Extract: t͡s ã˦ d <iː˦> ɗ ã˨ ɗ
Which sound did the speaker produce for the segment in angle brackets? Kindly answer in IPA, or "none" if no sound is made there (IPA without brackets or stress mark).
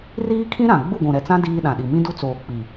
iː˦